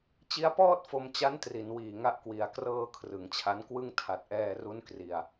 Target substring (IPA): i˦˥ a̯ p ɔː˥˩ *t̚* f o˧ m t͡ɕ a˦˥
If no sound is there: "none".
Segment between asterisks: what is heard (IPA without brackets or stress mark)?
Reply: t̚